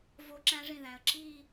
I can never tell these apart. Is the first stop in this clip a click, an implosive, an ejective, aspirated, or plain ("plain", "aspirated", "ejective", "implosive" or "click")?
click